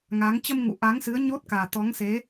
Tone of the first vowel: rising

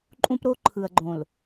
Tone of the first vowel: high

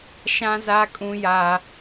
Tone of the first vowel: high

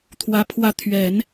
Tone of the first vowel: high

